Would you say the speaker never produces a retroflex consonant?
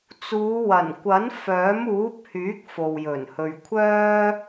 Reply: yes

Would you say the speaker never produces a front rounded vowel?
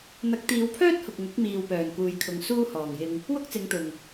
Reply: no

